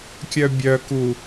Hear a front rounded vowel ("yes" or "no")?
yes